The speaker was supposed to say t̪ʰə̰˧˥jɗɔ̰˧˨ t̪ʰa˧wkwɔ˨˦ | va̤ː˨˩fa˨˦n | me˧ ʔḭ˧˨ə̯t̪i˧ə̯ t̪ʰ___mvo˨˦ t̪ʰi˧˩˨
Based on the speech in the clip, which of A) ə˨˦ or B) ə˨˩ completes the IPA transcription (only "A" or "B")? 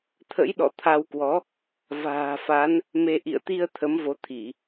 A